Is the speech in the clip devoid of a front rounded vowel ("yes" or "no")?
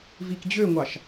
no